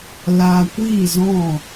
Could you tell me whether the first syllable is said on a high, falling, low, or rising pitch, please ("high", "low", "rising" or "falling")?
low